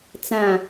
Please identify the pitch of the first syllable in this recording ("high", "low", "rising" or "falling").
falling